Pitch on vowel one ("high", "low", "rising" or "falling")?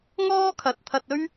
high